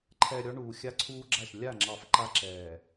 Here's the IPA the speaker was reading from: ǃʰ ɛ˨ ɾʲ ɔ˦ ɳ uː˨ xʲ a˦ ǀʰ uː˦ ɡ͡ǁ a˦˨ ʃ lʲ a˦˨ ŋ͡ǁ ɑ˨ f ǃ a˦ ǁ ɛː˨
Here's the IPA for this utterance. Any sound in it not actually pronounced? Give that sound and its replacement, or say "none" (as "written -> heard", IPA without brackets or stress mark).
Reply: none